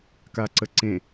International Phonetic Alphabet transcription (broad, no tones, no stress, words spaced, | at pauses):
kaǀəǀẽ